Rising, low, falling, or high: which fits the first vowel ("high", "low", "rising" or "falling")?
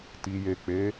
low